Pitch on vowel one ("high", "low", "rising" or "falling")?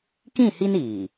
falling